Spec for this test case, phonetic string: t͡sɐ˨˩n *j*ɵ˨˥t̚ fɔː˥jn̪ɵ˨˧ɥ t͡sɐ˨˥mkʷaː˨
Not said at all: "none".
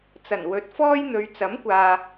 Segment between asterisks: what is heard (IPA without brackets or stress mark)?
w